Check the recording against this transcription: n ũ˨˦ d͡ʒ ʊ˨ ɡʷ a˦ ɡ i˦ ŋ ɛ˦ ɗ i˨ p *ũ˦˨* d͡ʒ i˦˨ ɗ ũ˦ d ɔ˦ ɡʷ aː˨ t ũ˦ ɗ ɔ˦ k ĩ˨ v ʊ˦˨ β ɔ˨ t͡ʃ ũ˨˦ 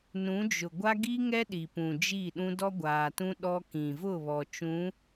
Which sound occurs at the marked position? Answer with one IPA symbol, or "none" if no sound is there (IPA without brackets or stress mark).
ũ˨